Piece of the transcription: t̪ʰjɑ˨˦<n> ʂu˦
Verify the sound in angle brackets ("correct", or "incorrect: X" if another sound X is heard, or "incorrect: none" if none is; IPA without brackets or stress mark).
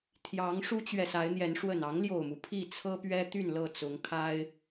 incorrect: ŋ